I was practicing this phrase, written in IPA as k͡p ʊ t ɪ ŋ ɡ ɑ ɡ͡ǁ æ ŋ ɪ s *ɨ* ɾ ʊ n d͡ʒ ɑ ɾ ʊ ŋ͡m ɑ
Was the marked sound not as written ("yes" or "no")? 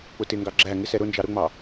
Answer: yes